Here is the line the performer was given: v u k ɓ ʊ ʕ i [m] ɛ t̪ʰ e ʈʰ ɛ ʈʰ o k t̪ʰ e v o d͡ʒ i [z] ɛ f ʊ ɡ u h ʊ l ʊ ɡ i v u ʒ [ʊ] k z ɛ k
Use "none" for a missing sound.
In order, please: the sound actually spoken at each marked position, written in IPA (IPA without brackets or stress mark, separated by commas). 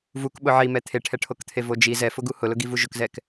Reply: m, z, ʊ